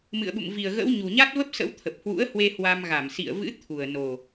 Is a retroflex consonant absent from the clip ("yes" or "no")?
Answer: yes